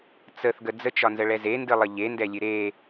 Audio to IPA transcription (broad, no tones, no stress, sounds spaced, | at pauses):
t͡s ə θ ɡ ə d͡z ə t͡ʃ ɒ n z ə ɭ ɛ z e n d ɨ lˠ ə ʎ e n d ɛ lʲ ɨ ɾ e